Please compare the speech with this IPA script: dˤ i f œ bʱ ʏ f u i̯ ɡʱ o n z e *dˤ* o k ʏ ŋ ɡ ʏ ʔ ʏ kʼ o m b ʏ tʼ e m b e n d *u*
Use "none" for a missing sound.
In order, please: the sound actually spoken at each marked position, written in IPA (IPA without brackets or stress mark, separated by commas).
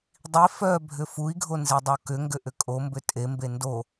dˤ, o